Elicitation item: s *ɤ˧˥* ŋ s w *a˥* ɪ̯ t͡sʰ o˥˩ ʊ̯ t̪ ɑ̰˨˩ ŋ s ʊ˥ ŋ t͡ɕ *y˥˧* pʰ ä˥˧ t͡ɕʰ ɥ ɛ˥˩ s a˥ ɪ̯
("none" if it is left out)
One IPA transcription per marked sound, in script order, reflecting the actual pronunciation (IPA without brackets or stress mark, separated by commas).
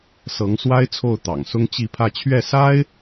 ɤ˧˥, a˥, i˥˧